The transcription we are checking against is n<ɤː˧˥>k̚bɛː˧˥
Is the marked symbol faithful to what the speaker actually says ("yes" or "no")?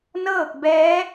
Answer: no